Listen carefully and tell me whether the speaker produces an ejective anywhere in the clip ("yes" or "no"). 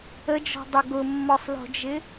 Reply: no